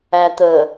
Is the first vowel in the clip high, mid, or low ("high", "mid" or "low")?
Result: low